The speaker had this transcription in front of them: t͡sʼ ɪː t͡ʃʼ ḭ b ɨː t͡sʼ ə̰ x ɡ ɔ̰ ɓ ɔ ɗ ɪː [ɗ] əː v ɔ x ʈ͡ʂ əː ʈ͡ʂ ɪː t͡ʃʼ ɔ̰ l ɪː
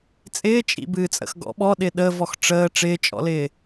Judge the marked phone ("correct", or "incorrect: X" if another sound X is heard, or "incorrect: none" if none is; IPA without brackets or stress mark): correct